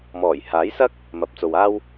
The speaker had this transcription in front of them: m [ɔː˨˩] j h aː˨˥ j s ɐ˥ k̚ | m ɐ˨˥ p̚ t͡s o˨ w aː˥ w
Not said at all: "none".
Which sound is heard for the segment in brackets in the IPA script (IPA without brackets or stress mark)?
ɔː˨˩